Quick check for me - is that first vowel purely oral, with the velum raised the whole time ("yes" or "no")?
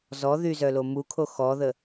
yes